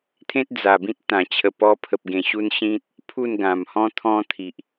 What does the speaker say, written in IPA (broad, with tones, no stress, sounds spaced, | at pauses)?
t̪ʰ ẽ˦ t̚ d͡z a˨˩ b ĩ˦ t̚ t̪ ã˨˩ t͡ɕʰ ə˨˩ p ɔ˧ pʰ ə˨ p̚ ɡ ẽ˨˩ ɕ u˧ n ɕ ĩ˦ t̚ | pʰ u˥˧ n ɡ ã˨˩ m h ɔ̃˦ t̪ʰ ɔ̃˦ t̪ʰ i˨ ʔ